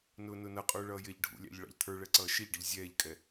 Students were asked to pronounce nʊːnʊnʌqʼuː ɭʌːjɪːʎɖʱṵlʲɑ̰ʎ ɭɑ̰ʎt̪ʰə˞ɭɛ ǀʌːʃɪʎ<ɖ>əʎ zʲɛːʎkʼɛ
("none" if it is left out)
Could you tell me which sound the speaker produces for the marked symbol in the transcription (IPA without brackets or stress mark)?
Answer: ɖ